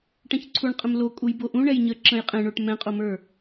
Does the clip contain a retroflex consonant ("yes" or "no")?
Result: yes